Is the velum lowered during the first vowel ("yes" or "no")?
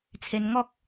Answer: no